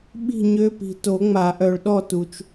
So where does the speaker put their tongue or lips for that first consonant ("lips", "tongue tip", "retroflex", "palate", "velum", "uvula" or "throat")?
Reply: lips